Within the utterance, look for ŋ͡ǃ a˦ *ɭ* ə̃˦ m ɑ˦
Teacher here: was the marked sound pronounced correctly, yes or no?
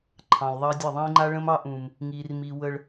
yes